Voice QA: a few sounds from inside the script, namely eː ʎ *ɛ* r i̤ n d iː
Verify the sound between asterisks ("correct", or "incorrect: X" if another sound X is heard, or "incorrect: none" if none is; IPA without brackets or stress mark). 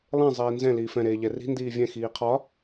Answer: correct